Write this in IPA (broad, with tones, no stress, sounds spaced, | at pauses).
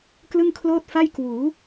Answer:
k l ɯ˥˩ ŋ kʰ l oː˥˩ t̚ f a˥˩ j k w uː˩˦